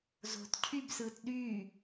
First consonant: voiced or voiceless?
voiced